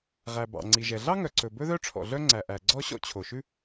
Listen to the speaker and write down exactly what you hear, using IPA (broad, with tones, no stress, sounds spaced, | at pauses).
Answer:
ʁ æ˩ b ɑ̰˩ ŋ͡ǀ i˩ ʒ ɛ˩ ɮ ɑ˥ ŋ œ˩ ǀ ɵ˩ b ɵ˥ ð œ˥ ʈ͡ʂʰ ɔ̰˩ ɮ œ˥ ŋ͡ǀ æ˩ ʔ æ˩ ɡ͡ǀ ɔ˥ ɕ ɔ̰˥ t͡ɕʰ o˩ ʃ ʉ˥